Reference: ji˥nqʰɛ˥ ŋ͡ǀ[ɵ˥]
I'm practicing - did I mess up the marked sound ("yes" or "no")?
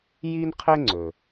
yes